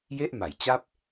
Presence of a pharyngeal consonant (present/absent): absent